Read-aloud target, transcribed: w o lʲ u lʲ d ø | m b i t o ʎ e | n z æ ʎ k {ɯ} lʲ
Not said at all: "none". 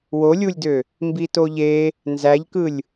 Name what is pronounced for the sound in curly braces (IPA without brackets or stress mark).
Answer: ɯ